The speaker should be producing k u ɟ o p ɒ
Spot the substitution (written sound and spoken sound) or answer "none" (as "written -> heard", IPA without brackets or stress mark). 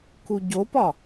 none